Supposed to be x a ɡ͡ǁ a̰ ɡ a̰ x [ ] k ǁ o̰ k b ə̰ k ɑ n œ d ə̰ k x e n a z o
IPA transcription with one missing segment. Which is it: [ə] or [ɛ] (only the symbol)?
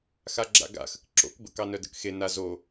ə